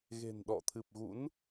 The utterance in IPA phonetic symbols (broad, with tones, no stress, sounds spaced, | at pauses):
ɣ e̤˨˩ n ɗ ɔ̰˧˨ t̪ʰ ɨ˨˩ p̚ ɣ ṵ˧˥ n